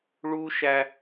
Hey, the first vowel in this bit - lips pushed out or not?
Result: yes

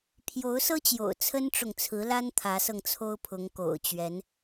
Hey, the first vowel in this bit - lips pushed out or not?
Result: yes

